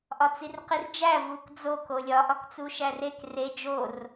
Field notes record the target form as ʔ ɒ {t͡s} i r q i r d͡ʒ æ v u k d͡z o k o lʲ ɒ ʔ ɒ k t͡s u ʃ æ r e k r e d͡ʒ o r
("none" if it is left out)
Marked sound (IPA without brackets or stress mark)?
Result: t͡s